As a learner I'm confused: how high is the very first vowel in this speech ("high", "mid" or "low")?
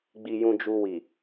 high